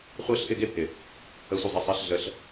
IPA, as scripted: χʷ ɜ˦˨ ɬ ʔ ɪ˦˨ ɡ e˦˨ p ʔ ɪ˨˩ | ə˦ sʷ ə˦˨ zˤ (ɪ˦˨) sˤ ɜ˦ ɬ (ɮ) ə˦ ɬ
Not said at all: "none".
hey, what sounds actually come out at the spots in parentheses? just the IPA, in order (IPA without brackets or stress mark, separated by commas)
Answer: ɪ˦˨, ɮ